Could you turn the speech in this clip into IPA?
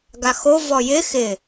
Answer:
ɡaxo vɔjɪ xɪ

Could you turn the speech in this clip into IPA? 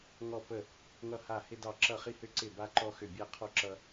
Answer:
ŋɔ˥˩pə˥˩ | ŋʌ˥˩ha˥˩hɪ˥dɑ˥˩ ǁʌ˥˩χi˥hʏ˥ǀɪ˥˩ ba˥ǃɔ˥xʏ˥˩ bʲa˥qʰɔ˥ ǁʌ˥

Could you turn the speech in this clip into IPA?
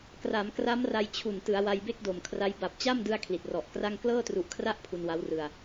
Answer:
kra˩˦mkra˦˥mra˧j t͡ɕʰu˨˩n tɯ˩˦a̯wa˧j be˥˩k̚do˨˩mkʰra˦˥j ba˨˩p̚t͡ɕa˥˩mdɯ˧a̯ kʰli˨˩t̚rɔ˨˩ʔkra˥˩ŋ klɤː˥˩tru˨˩ʔkʰra˥˩ʔ pʰu˧nwa˦˥wrɯ˧a̯

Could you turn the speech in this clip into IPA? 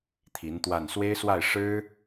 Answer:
t̪ʰi˧˥nt̪wa˥˩n swe˥ɪ̯swa˥˩ɪ̯ ʂɻ̩˥

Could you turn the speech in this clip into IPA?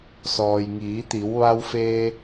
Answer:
sɔː˩jŋiː˩˧t̪i˩˧w ʋa˧wfeː˧

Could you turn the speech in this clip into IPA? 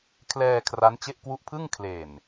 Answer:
kʰlɛː˧ kʰra˦˥nt͡ɕe˥˩ʔ kwu˦˥ʔpʰɯ˥˩ŋ kʰle˨˩n

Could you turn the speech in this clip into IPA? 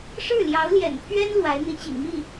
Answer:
ʂɻ̩˥˩ljɑ˧˥ʊ̯ljɛ̰˨˩npʰɥɛ˥n lwa˧˥ɪ̯n̪i˧˥t͡ɕḭ˨˩ŋmi˥˩

